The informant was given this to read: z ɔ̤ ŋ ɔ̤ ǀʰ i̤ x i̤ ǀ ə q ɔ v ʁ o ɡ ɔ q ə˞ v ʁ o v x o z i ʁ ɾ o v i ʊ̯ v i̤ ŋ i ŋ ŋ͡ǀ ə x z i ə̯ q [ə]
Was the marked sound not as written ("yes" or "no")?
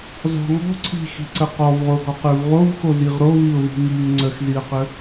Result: no